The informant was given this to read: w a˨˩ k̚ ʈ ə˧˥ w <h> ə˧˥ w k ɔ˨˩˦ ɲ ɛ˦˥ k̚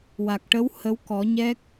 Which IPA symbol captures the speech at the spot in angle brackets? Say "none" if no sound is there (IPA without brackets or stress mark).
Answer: h